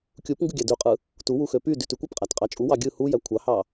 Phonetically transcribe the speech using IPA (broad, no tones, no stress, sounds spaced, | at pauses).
kʲ u p ŋ ɡ ɯ ɡʲ æ d y qʼ ɯ | t u w u x ø p y d y t y kʷ ɯ p qʼ æ t qʼ ɑ t͡ʃʼ u w ɑ ɡʲ ɯ h u j æ kʷʰ ɑ h ɑ